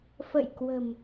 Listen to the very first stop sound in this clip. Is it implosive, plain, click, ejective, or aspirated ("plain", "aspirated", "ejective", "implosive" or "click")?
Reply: plain